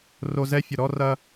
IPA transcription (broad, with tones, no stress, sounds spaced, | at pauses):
r o˨ z ɛ˦ fʲ ə˨ ɾ ɔ˦ r ɐ˦